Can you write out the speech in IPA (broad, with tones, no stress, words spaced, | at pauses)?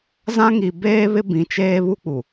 zã˦ŋi˨beː˦βɪ˦ bĩ˨t͡ʃeː˦βu˦k͡pu˨